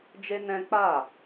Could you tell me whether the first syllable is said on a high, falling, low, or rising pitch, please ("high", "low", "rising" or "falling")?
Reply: high